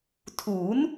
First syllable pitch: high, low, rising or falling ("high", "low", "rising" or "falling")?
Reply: rising